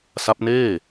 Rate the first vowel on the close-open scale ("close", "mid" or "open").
open